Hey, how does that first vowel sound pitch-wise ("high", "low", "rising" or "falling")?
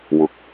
low